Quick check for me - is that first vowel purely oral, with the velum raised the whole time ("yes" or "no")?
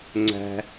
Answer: yes